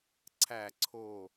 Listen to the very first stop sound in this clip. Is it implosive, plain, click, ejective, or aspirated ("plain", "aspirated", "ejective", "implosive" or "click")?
click